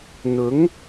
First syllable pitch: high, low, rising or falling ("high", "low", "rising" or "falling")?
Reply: rising